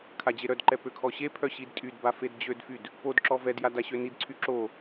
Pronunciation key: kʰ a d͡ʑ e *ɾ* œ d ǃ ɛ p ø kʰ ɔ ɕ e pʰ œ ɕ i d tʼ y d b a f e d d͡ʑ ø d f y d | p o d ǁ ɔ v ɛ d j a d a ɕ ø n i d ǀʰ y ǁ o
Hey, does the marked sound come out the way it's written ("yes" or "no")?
yes